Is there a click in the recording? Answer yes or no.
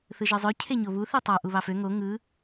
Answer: no